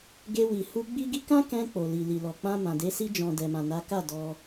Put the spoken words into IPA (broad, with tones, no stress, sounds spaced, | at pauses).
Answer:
ɡ e˧ w i˨ h u˧ ɡ͡b i˦ ɡ i˦ k ã˦ k ɛ̃˧ k͡p o˨ l i˨ l i˨ l ɔ˨ k͡p ã˧ m ã˨ d e˨˦ s i˧ d͡ʒ ɔ̃˨ d ɛ˨ m ã˨ n a˨˦ k a˦˨ d ɔ˧